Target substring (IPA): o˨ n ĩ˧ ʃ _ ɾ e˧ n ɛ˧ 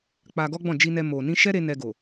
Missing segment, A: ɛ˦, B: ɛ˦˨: A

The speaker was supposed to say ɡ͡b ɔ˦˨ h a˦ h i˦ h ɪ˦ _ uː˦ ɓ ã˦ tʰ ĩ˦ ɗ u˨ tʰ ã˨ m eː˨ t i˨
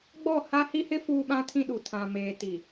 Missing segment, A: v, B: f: B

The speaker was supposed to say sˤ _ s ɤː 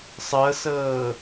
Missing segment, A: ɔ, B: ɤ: B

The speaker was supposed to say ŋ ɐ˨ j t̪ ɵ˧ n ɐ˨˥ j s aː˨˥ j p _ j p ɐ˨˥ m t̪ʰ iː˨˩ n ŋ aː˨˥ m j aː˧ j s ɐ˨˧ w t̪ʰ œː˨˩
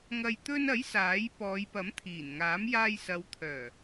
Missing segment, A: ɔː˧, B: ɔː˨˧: B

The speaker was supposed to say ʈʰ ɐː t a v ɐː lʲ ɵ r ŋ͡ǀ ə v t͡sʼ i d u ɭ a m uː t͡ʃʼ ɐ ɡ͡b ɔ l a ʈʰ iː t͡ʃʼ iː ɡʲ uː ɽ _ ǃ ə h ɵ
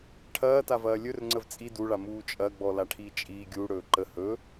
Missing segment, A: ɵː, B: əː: A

